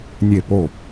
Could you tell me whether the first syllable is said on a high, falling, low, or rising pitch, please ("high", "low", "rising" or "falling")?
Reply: falling